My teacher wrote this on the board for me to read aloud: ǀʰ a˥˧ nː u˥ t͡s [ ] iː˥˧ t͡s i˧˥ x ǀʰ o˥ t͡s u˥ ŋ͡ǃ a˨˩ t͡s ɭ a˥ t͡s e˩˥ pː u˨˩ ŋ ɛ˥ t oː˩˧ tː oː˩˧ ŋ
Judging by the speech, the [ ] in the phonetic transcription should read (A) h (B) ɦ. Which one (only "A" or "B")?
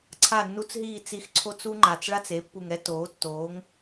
B